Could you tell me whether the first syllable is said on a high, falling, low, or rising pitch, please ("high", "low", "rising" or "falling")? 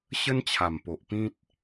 high